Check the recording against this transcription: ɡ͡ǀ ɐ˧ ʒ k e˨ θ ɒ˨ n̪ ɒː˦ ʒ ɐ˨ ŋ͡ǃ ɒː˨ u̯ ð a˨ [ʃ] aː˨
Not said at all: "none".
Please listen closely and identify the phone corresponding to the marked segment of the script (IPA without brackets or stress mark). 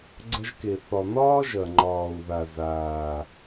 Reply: z